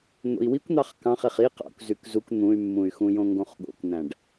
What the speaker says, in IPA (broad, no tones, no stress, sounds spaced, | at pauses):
n̪ o̰ i̯ w i kʷ n̪ ɑ χ k ɑ̃ χ e χ i q ɑ̰ kʷ z y k z u k n̪ ũ y̯ mː ũ y̯ x ũ j õ ŋ ɡ õ χ ɠ o̰ kʷ n̪ æ̃ ɖ